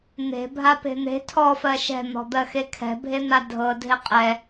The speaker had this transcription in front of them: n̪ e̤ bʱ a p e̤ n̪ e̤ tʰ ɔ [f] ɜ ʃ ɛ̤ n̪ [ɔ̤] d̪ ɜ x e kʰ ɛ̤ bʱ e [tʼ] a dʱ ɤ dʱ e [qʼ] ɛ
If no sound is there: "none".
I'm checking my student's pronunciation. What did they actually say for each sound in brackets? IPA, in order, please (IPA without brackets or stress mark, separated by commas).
f, ɔ̤, n̪, qʼ